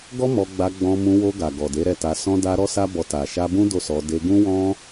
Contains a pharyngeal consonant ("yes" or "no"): no